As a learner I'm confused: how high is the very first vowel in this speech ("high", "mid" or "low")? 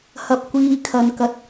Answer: low